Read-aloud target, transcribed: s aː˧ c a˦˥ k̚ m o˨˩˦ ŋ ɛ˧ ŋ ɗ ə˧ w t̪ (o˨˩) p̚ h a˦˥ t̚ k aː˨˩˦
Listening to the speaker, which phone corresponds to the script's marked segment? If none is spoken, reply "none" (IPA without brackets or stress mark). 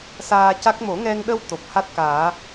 o˨˩